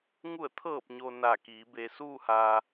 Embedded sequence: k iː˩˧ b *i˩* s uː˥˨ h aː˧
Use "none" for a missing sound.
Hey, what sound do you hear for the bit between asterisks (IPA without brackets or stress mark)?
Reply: e˩